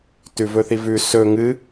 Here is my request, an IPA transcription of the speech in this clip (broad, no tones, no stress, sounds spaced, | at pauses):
t ʉ v ɵ θ i v ʉ s ɵ ŋ ɨ